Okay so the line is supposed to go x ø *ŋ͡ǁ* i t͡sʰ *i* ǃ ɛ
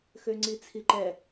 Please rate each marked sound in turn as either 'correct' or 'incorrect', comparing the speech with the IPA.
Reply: incorrect: ŋ͡ǀ, correct

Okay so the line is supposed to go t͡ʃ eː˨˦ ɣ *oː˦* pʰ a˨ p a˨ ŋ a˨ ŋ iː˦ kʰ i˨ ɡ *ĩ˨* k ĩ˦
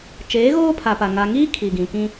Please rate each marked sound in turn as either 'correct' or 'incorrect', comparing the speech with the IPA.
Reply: correct, correct

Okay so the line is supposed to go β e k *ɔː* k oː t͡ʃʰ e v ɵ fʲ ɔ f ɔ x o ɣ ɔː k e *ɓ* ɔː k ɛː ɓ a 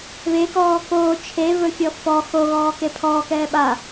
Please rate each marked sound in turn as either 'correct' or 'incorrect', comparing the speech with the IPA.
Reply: correct, incorrect: pʰ

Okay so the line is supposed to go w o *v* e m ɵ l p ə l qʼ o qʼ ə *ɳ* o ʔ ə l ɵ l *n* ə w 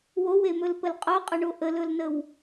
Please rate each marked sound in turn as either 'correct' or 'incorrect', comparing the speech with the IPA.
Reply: incorrect: w, correct, correct

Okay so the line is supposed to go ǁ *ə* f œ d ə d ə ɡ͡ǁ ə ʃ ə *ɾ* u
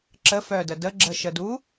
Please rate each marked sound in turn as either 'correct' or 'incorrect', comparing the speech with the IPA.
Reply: correct, incorrect: d

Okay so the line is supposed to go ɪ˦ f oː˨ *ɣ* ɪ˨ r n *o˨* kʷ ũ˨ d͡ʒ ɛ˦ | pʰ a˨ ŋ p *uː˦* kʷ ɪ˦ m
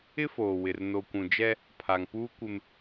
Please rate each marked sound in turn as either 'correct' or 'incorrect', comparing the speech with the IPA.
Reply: incorrect: w, correct, correct

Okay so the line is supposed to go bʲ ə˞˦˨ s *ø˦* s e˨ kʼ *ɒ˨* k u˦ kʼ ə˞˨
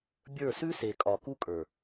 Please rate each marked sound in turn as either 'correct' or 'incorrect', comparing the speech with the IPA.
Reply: incorrect: ʉ˦, correct

